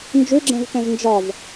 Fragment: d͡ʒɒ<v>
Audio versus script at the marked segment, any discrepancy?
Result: no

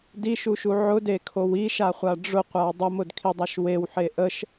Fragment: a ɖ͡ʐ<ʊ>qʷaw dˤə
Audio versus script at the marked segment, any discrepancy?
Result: no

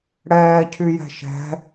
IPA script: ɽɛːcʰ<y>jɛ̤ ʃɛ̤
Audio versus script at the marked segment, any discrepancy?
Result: no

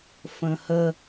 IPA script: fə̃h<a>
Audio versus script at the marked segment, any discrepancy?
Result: yes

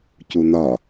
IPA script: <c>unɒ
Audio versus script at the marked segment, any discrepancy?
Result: no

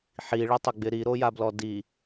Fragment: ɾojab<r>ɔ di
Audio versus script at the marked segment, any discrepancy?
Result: yes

